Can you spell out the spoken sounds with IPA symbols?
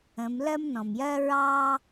ə̃˩˧ m l ɜ˥ m n ɔ̃˩ m j ɜ˥ ɹ ɑ˥

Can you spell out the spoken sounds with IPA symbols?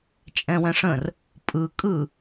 t͡ʃʼ ɛ̃ w ɛ̃ ʂ ə̃ r | pʼ ɯ kʼ ɯ

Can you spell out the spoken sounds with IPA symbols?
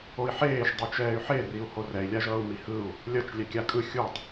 o i̯ ħ eː ʃ dˤ ɯ t͡ʃ ɛː y̯ ħ e r i u̯ h o r ɛ i̯ lʲ a ʒ ʌː u̯ m i h ɯ u̯ | lʲ ʌ t͡ʃ lʲ ɛ kʲ a kʼ ɯ xʲ u tˤ

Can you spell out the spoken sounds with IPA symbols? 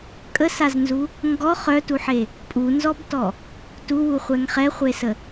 kʼ ə s a z n z u | ŋ ɡ ɔ χ œ t u ħ e | pʼ u n z ɔ b t ɔ | t u w u χʷ ɛ ŋ χ ɛ χʷ e s ə

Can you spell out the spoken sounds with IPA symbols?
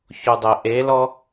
ç o dˤ ɛ ʔ e l ɔ

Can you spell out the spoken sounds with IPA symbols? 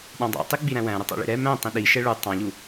ɗ ɑ̃ dˤ ɑ̰ tˤ i ɡ͡b i ɾ æ̃ w æ̃ ɾ ʊ tˤ ɑ̰ ɭ ḭ ɾ ɛ m æ̃ tˤ ĩ ɗ i ʃ ɛ ɭ u tˤ ɑ̃ ʎ u

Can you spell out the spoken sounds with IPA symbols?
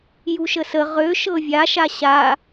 j u ʃ ə s ə ʁ ø ʃ ɤ vʲ a ʃ a ɕ a

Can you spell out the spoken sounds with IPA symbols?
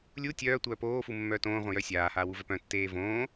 lʲ u tʲ œː tʷ œː p oː f u mː œː t õː ʁʷ œ̃ j œ sʲ aː h aː w u v œ p œ̃ tː eː v õː

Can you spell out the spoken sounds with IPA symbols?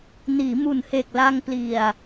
n iː˩˦ m u˨˩ n h e˨˩ k̚ l a˧ ŋ p l i˨˩ a̯

